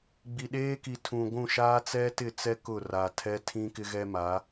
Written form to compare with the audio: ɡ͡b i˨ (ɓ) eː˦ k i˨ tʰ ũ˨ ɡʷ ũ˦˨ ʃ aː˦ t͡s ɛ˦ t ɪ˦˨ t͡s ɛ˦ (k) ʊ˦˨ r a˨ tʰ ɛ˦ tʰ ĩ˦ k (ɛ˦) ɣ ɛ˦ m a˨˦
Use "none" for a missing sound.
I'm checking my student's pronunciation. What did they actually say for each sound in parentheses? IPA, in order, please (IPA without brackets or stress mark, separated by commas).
ɗ, k, ɪ˦